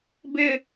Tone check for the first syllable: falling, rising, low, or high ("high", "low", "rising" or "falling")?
high